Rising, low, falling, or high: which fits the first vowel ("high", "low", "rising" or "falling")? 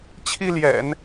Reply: high